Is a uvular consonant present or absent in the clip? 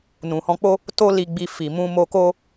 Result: absent